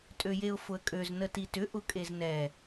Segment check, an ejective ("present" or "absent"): present